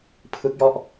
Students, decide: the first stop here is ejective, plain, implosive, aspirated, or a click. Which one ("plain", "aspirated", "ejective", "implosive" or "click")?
aspirated